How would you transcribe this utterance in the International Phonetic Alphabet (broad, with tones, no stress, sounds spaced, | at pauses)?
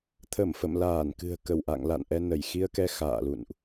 t̪ʰ ə˧˩ m f ə̰˧˨ m l aː˧˩ n k ɨ̤˨˩ ə̯ k ə˧˩ w ʔ a̰˧˨ ŋ l a̰˧˨ n ʔ ɛ˧ n ə˧˩ j x i˧ ə̯ k ɛ˧ x a̰ː˧˨ l ṵ˧˨ n ʔ